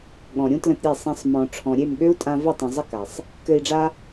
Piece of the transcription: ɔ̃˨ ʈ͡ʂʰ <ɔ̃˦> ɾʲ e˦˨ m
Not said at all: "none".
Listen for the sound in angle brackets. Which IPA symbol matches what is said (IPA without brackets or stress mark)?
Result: ɔ̃˨